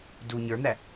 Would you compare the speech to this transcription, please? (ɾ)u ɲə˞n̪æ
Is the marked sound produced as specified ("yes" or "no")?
no